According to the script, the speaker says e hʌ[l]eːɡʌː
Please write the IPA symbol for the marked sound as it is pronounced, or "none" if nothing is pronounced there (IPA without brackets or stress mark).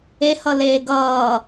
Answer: l